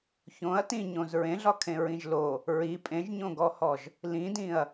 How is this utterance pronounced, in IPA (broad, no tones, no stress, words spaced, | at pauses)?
çõɐ̯ tĩ ɲõzɹẽɮɒkʰẽ ɹĩʒlo | ɹi pʼẽʒɲõɡɔhɔʒ | lĩdĩɐ̯